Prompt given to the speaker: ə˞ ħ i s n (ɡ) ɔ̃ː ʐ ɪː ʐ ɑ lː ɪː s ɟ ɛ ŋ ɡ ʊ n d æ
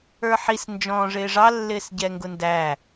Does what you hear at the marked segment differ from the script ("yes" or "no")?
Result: yes